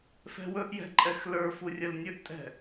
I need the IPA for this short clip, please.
f ɛ̤ w ɵ ʔ j ɛ̤ ǃʼ ɛ x l ə˞ f u rʲ ə l nʲ ɵ ʔ tʼ ɛ̤

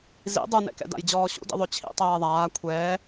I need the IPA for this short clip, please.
z ḭ dˤ u n ɛ̰ k ɛ̰ d a̰ j d͡ʑ ɔː ɕ ṵ d ḭ ðˤ ø t͡ɕʰ ḭ tˤ ɛː ðˤ aː kʷʰ ɛː

